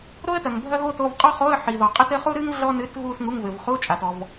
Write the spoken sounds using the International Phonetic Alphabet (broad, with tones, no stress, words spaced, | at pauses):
ɾo˥ə̯tɐ˩ŋ bʱɐ˥ ɣo˥to˧˥˧v qʼɔ˥˧χo˧˥˧ə̯ ħi˩ðɔ˩ qʼɨ˥˧tɘ˥ χu˥ɾɨ˥ŋ ɮɔ˥nɨ˧˥˧t ɣu˥˧sŋu˧˥˧ŋvɘ˩v χu˧˥˧t͡ʃʼa˩tɔ˩v